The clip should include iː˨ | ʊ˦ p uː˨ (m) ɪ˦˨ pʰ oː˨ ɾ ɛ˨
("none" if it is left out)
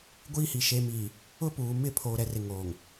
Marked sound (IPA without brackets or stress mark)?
m